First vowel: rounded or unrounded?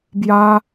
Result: unrounded